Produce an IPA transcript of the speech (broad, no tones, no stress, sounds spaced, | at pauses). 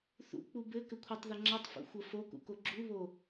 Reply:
θ ṵ k͡p u b ɘ k ɘ kʷʰ ʌ tˤ ð ə ŋ͡ǁ ʌ tˤ f ṵ xʷ ə f o k ṵ k o ɡ͡ǁ u β o